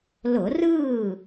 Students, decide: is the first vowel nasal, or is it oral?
oral